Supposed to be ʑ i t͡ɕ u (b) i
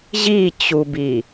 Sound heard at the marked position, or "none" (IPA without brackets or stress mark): b